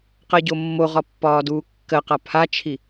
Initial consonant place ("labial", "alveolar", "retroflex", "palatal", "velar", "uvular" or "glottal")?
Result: uvular